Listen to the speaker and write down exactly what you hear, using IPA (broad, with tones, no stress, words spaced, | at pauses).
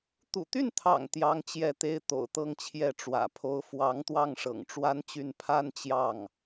t̪ṵ˨˩t̪y˥˩nt̪ʰɑ̰˨˩ŋ t̪jɑ˧˥ŋ t͡ɕjɛ˥˩t̪e˥ɪ̯ t̪o̰˨˩ʊ̯t̪ɤ˥˧ŋt͡ɕʰjɛ˥˩ ʈ͡ʂwä̰˨˩pʰo˥ʊ̯ fwɑ˧˥ŋt̪wɑ˥˩ŋ ʂɤ̰˨˩ŋʈ͡ʂwa˥nt͡ɕy˥˩n pʰa˥nt͡ɕjɑ˥˩ŋ